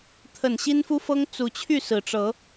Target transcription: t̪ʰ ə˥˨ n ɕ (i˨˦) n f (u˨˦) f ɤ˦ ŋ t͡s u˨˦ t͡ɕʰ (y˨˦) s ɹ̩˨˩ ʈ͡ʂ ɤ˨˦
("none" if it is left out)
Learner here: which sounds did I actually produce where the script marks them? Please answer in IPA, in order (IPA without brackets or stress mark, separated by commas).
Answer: i˦, u˦, y˥˨